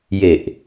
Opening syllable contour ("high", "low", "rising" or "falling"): low